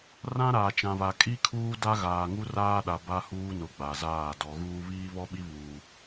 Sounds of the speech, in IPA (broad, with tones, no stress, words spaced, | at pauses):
rã˦ɾaː˨t͡ʃã˨βa˨ kʼi˦kʰuː˦ da˦ɣaː˨ŋu˦ raː˦ɗa˨ ba˦huː˦nʊ˨ ɡ͡ba˨zaː˦˨ dɔ˨ɣuː˦ βiː˦βɔ˦ɓi˦βuː˨